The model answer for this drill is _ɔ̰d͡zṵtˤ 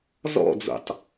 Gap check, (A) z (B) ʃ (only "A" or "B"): A